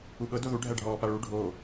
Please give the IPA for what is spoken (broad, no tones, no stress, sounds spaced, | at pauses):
u ɠ ɤ d o ð u ɖʱ æ ɖʱ ɔː p a ɭ u ɖʱ o